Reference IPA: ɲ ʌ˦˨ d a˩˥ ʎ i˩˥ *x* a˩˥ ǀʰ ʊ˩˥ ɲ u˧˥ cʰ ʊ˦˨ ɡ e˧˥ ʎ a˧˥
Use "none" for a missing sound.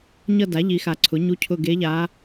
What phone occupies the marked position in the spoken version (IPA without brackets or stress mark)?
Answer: x